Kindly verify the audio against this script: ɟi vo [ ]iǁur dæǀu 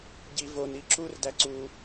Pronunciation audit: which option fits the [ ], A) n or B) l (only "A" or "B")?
A